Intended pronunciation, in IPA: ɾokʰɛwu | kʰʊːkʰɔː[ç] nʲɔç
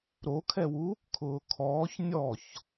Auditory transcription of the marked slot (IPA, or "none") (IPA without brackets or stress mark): ç